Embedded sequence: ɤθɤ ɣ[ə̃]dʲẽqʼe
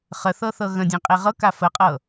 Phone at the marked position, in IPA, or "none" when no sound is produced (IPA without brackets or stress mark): ə̃